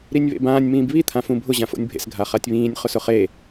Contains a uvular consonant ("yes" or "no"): yes